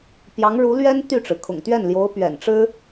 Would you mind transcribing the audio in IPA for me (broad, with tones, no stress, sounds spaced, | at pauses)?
p j ɑ˧˥ ŋ ɻ u˧˥ l ɥ ɛ˥ n t̪ y˥˩ ʈ͡ʂ ɻ̩˩ kʰ ʊ̰˨˩ ŋ t̪ ɥ ɛ˥˩ n l j o˧˥ ʊ̯ p ɥ ɛ̰˨˩ n ʈ͡ʂ ɻ̩˥